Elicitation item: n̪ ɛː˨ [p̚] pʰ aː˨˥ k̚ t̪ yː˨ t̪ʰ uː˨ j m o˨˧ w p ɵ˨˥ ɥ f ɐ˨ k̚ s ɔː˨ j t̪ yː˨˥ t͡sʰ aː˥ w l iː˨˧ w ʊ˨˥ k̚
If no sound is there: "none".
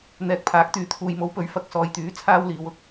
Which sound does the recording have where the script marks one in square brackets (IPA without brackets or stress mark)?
k̚